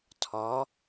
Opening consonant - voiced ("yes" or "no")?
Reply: no